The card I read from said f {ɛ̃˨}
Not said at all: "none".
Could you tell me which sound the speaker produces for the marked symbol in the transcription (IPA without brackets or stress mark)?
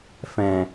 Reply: ɛ̃˨